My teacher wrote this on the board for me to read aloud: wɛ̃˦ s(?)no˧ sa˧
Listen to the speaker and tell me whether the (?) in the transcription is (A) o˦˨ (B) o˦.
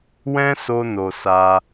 B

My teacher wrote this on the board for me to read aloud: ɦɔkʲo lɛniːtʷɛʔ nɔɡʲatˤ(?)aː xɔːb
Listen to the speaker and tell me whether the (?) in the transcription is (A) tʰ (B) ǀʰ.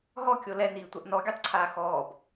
B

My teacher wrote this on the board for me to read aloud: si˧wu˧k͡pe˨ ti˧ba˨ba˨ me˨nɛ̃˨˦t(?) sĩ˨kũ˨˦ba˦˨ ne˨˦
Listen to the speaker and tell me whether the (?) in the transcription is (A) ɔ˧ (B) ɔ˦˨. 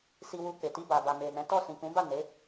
B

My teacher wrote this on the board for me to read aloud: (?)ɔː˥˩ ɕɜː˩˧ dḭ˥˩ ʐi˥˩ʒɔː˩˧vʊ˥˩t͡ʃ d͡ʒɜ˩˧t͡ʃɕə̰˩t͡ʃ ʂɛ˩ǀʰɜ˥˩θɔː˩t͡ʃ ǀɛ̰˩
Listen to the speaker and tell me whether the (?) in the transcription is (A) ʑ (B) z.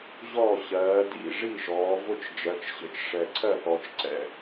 A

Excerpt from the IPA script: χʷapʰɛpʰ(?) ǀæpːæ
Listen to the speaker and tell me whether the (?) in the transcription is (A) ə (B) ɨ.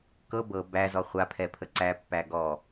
A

